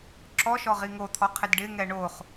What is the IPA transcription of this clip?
ǁ ɔ ʃ ɔ ʁ i ŋ o t̪ʰ ɔ qʰ ɪ d ɖ ɪ ŋ ɛ ɳ o χ

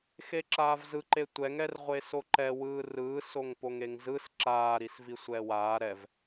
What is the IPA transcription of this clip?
x e ǁ aː v z ɯ ǃ e tʷ ɛ ŋ ɛ r ʁʷ e s o ǃ ɛ w ɯː r ɯː s o ŋ p o ŋ e ŋ z ɯ s ǁ aː ɾ i s v i sʷ ɛː w aː ɾ ɛ v

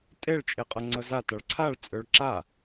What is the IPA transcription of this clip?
tʼ e ɭ t͡ʃʼ e qʼ ɤ ŋ͡ǀ ɤ z a t ɒ ɭ ǀʰ a ɭ t͡sʼ ø ɭ ǁ a

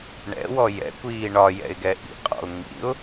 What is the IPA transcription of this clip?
ɳ ɛ̰ w ɔ j ɛ̰ kʷ iː ɳ ɒ j ɛ̰ ɪ̯ ɡ ɛ ʔ ḭ qʼ ɔ̰ ʊ̯ ŋ ḭ ʊ̯

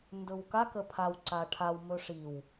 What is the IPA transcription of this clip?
n d ɵ w k a k ə pʰ a w ǀ a ʈʰ a w m ɵ ʂ i w

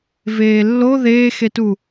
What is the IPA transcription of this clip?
v eː lː o ð eː x e t u

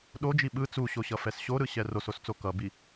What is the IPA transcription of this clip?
ɗ o d͡ʒ i ɓ ɯ t͡s u ɕ o ɕ ʌ f ɛ s ɕ o ɾ ɯ ɕ ɛ r o s o s t͡s o k ʌ b i

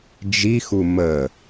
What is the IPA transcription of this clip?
d͡ʒ i x u m ə

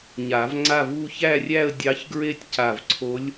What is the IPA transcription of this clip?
ɲ a˨˩˦ v ŋ͡ǀ a˥˧ v u˥˧ ç æ˥˧ rʲ æ˥˧ ə̯ dʲ ɑ˧˥ ç ɡ ɹ e˥˧ tʲ c a˧˩ v ǀʰ o˧˥ lʲ

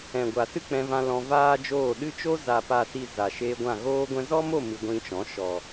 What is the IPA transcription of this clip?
ɛ̃˨ ɡʷ a˨ s ɨ˦ k͡p ɛ̃˧ v ã˧ l ɔ̃˧ v aː˦ d͡ʒ oː˦˨ ɗ ɨ˦ t͡ʃ o˦ z a˨ p a˨ s i˨ z a˨ ʃ eː˧ ɡʷ ã˦˨ ɣ oː˧ ɡʷ ɛ̃˧ z ɔ˦ m o˦˨ m ɨ˧ ɡʷ ĩ˧ t͡ʃ ɔ̃˨˦ ʃ ɔ˨

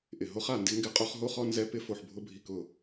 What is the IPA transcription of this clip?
ʔ ɪ˩ ɦ o˥ χ a˩ n d ɪ˥ ŋ ɡ ɪ˥ qʼ o˥ χ ɦ o˥ χ ɔ˥ n z ɛ˥ p ɪ˥ f o˩ ħ bʱ ʊ˥ bʱ i˩ k ʊ˩

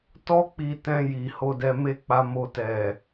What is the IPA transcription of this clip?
t ɔ˦ k͡p i˧ t ɛ̃˧ j i˨ h o˧ d ɛ˧ m e˦ k͡p a˧ m o˧ t ɛ˨

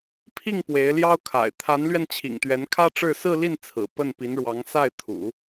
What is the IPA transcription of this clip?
pʰ i˥˩ ŋ p w e˧˥ ɪ̯ l j ɑ˥ ʊ̯ kʰ a̰˨˩ ɪ̯ t̪ʰ a˧˥ n l ɥ ɛ˧ n t͡ɕʰ ḭ˨˩ ŋ t̪ ɥ ɛ˧˥ n kʰ ä˥ ʈ͡ʂ ɻ̩˥˧ s ɹ̩˥˧ l i˥˩ n t͡sʰ ɹ̩˨˩ p ə˥˩ n p i˧˥ n ɻ w ɑ˧˥ ŋ s a˥˩ ɪ̯ t̪ʰ ṵ˨˩˦

